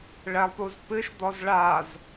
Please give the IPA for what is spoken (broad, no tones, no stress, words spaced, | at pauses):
ɭɛlˠpuzpɨʃd̪ɔz ɭaz